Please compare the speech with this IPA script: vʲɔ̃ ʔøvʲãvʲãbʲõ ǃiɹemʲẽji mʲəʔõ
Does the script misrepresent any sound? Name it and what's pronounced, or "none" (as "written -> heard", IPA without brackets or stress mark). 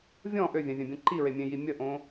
none